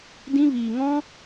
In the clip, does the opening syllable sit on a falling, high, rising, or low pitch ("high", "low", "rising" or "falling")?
high